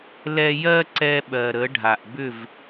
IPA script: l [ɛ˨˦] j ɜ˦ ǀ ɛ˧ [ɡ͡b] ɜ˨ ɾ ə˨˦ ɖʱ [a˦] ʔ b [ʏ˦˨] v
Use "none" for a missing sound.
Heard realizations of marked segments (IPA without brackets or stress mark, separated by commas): ɛ˧, ɓ, a˨, ʏ˦˨